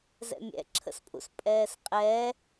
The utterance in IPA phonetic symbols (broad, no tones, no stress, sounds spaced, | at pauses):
z ɛ̰ mʲ ɛ̰ ǁʰ ə̰ s pʼ ṵ s pʼ ɛː s qʼ ɛ